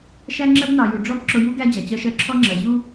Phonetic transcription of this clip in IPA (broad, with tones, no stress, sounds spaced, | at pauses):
ʃ æ˦ ŋ͡ǁ ɜ˦ b n ɑ˨ j u˨ ɖ͡ʐ ɔ˦ b ǁ ʊ˦ j u˦ ɡ æ˦ d͡ʑ æ˨ t͡ɕ ɜ˦ ʃ ɜ˦ ǁʰ ɔ˦ ŋ͡ǁ ɜ˨ ʑ u˦